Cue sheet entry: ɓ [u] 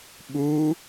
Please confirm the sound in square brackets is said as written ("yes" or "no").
yes